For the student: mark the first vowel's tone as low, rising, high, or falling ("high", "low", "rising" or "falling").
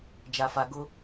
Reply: low